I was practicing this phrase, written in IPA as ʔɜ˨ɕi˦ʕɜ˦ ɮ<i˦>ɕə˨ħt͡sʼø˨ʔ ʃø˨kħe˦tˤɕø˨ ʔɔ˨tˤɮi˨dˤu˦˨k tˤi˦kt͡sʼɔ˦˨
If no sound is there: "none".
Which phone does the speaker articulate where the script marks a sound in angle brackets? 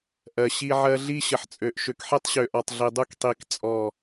i˦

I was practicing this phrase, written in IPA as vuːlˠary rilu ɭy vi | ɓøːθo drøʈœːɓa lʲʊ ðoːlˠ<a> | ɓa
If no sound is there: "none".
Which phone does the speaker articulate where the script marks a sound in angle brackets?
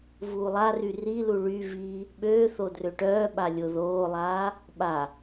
aː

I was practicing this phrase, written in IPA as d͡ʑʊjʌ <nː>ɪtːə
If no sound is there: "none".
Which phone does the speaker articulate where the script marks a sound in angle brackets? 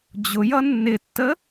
nː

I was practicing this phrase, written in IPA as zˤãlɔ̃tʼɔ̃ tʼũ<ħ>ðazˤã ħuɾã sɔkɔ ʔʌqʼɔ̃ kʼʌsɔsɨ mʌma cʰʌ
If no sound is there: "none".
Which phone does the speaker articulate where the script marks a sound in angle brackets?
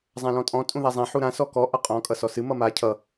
none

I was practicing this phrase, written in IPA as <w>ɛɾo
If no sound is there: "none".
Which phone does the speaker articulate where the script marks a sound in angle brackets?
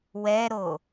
w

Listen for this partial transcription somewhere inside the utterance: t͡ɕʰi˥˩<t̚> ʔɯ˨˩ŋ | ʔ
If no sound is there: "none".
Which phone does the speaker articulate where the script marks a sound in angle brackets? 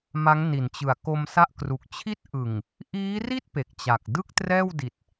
t̚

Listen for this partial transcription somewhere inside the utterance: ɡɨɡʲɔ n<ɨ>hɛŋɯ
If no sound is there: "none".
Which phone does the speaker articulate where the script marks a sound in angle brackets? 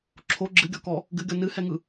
ɨ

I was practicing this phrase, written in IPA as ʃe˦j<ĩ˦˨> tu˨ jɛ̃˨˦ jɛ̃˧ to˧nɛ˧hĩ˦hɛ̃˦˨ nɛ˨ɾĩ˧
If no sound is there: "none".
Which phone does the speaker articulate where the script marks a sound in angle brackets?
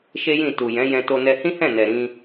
ĩ˦˨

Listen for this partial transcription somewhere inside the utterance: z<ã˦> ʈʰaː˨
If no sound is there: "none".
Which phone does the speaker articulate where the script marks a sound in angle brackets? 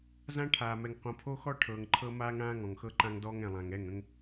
ã˦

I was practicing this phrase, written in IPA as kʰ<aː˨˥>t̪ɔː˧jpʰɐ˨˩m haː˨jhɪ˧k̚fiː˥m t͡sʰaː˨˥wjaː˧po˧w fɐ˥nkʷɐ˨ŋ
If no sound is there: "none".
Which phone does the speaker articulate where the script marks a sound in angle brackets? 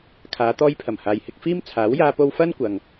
aː˨˧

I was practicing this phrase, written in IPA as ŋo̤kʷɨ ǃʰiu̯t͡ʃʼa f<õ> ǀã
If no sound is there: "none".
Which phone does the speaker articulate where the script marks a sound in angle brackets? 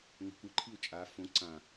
õ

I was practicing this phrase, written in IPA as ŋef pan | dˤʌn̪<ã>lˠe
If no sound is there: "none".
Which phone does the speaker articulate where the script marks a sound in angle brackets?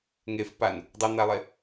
a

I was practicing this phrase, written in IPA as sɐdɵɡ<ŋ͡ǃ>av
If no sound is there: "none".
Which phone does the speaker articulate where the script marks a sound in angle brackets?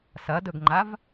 ŋ͡ǃ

